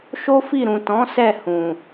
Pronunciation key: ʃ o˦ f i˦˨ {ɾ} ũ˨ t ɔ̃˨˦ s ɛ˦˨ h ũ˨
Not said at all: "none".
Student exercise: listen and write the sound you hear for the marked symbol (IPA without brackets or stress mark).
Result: ɾ